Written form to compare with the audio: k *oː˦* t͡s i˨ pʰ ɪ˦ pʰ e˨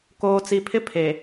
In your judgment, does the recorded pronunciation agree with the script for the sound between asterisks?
no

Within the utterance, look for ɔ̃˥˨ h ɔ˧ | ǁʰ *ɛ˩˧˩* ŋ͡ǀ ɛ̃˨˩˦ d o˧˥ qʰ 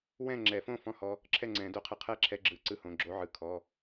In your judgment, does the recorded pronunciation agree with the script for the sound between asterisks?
no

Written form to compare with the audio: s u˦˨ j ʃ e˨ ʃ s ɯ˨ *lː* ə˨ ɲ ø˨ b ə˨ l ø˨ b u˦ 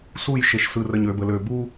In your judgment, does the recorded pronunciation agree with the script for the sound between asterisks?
no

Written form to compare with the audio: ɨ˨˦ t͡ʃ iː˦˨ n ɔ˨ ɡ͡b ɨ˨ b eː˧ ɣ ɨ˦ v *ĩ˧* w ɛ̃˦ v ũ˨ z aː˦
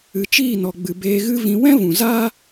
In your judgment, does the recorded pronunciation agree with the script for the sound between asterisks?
yes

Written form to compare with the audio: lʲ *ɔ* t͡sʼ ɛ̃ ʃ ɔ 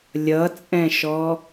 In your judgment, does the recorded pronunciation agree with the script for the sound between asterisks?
no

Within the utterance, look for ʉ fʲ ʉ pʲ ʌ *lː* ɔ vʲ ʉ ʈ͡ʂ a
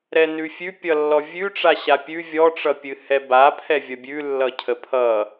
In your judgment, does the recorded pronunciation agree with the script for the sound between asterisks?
yes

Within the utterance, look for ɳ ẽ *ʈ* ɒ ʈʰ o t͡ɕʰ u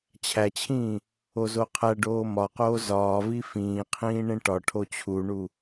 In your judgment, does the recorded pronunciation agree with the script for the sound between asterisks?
yes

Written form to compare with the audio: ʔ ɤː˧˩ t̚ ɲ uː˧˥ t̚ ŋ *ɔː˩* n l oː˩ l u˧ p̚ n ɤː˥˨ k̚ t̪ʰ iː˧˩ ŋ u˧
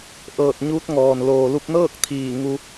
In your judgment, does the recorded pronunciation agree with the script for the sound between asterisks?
yes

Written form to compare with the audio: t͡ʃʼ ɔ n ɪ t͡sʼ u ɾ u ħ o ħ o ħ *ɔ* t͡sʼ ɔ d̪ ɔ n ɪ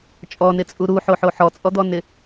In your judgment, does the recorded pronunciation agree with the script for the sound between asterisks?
yes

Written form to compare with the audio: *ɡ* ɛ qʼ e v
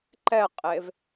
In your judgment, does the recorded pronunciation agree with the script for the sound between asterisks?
no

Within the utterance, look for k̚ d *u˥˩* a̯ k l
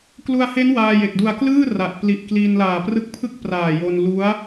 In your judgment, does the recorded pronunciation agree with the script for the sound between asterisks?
no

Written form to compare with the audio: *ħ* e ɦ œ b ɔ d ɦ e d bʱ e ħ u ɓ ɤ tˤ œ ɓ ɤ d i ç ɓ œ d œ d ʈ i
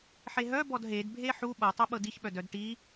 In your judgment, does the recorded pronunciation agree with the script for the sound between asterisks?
yes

